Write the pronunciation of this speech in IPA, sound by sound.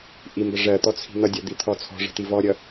ʔ i m b ə ʐ ɜ t̪ ɔ t͡sʰ i̤ n̪ ʌ dʲ ʌ d̪ i t̪ʰ ɔ t͡sʰ ɔ̤ ʐ ə̤ t̪ i v ɔ ɾʲ ʌ

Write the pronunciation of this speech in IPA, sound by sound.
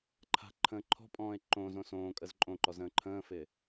ǃʰ a̤ ǃʰ ə̃ː ǃʰ ɔ̤ pʼ ɔ̃ː e̯ ǃ õ z õ s õː kʼ ə z ǃʼ õ ǃ ɔ z ə̃ː ǃʰ ə̃ː f ɪː

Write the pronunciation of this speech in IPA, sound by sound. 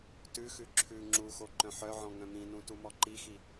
t ʉ x ʉ ǁʰ ʉ ŋ͡ǁ u x o ǃ œ̃ ħ œ ʕ ɔ̃ ŋ œ̃ m ĩ n ũ t u m ɔ ǃ i x i

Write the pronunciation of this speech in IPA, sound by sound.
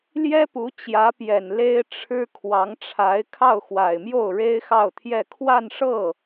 l j ɛ˥ p u˧˥ t͡ɕ j ä˧˥ p j ɛ˨˩ n l e˥ ɪ̯ ʈ͡ʂʰ ɻ̩˥ kʰ w ɑ˧˥ ŋ ʈ͡ʂʰ a˧˥ ɪ̯ kʰ ɑ˥˩ ʊ̯ x w a˨˩ ɪ̯ m j o˥˩ ʊ̯ ɻ e˥ ɪ̯ x ɑ˥˧ ʊ̯ t̪ʰ j ɛ˥˧ kʰ w a˥˧ n ʂ ɤ˥˩

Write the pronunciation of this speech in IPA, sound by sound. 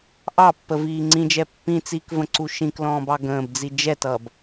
ʔ ɑ pː ə v iː ŋ͡ǀ ĩ d͡ʒ ɛ pː ĩ t͡s iː k v ə̃ ǀ u ʃ ĩ k l ɔ̃ː b ɑ ɡ ə̃ː b d͡z i d͡ʒ ɛ t ʌː b

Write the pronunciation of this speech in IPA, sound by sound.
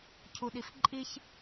cʰ u ɗ i f ǃʼ i ç

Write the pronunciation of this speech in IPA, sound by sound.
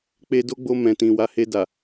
k͡p e˧ d o˦ ɡ͡b o˧ m ɛ̃˨ t ĩ˨ w a˨˦ h e˧ d a˨

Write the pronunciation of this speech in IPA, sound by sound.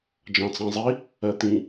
d͡ʒ ɑ̃ t͡s ɑ̃ zˤ i | ɜ t̪ ĩ

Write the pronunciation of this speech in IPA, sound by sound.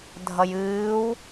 dʱ ʌ j ɨː w

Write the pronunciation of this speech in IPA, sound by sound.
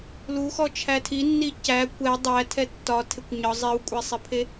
l u x ɔ t͡ʃʰ æ tʰ i nː i c æ kʷ ɛ dˤ æ tʰ ɛ tː ɒ tʰ e kʷ ɲ ɒ zˤ i w kʷʼ e sˤ e pʰ e

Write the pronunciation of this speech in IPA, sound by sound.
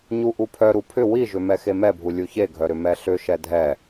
ɲ u ʔ u pʰ œ ɾ u pʰ ʏ w i ʒ ʏ m ɛ x e m ɛ bʱ u lʲ u ç e ɡʱ œ ɾ ʏ m ɛ ɬ ʏ ʃ ɛ dʱ ɛ

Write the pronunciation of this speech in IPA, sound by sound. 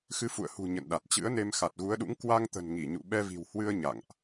x ɨ˨˦ f ṵ˧˨ ə̯ h ṳ˨˩ ɲ ə̰˧˨ n ɗ a˨˩ t̚ t͡ɕ ɨ̰˧˥ ə̯ n e˧ m x a˨˩ t̚ ɣ u˨˦ ə̯ ɗ ṵ˧˥ ŋ k w a˧ ŋ t̪ ə̤˨˩ n ŋ i˧˩ ɲ ṵ˧˨ ɓ ɛ˧ v i̤˨˩ w h w ɨ˧ ə̯ ɲ a̰˧˨ ŋ ʔ

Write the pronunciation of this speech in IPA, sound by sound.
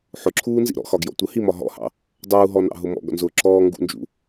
ħ ʊ ǁʰ uː n z ḭ ɾ ɔ̰ x ɒ ɡ j ɔ̰ tʷ ə h i m ɒ ɦ ɔ̰ h ɑ̰ | dˤ uː ɦ ɔ n ɑ̰ ɦ ʊ m ɔ̰ ɡ ɔ̰ n z ʊː ǁ ɔː ŋ ɡ ṵ n d͡ʒ ṵ

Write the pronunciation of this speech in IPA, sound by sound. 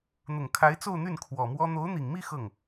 n̪ ʊ˨˩ ŋ kʰ a˧˥ ɪ̯ t͡s o˥˧ ʊ̯ n̪ y˥˩ n kʰ w ɔ˨˩ m w ɔ˥ n̪ o˧˥ ʊ̯ n̪ i˨˩ ŋ m i˥˧ x ɤ˥˩ ŋ

